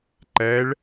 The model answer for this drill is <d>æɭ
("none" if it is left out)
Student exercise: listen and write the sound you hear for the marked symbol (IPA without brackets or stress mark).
ǃ